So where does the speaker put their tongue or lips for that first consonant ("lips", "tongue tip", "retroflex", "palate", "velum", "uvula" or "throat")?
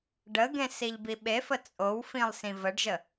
retroflex